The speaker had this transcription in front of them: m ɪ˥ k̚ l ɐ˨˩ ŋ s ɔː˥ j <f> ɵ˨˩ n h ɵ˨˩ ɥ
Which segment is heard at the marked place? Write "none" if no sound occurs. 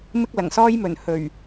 m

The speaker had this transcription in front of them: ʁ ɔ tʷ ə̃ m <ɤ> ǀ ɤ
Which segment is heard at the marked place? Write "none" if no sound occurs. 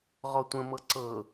ɤ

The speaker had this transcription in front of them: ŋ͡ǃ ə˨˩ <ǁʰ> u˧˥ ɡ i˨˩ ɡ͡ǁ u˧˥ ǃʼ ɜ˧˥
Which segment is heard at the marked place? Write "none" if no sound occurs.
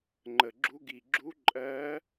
ɡ͡ǁ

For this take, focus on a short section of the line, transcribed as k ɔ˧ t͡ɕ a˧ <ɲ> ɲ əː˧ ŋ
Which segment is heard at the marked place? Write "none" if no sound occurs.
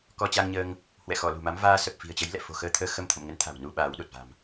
ŋ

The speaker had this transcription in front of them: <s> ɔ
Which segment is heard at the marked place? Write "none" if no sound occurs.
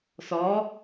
s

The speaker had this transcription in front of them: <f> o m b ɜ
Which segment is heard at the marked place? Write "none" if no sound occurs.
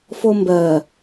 f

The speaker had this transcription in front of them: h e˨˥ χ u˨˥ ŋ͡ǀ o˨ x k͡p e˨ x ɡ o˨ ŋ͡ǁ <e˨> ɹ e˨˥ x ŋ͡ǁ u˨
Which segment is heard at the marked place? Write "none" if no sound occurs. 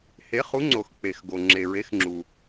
e˨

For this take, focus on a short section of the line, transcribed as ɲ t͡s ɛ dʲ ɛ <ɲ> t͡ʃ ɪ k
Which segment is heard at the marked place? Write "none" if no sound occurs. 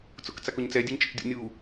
ɲ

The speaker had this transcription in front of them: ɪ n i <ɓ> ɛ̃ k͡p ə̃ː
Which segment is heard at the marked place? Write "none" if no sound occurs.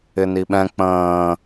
ɓ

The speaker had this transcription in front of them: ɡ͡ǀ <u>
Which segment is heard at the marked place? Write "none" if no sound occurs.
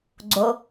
o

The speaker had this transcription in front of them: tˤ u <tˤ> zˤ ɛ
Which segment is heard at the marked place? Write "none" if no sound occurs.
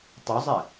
none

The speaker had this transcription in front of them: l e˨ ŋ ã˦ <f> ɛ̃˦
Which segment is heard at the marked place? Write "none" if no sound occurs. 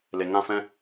f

